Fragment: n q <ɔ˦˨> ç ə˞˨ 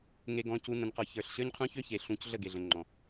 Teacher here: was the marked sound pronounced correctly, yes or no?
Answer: no